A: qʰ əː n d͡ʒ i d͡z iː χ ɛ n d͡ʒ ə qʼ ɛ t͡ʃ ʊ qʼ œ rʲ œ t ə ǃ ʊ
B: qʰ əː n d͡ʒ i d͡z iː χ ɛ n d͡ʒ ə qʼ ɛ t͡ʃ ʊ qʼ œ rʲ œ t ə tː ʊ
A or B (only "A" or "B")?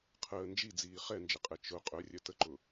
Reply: A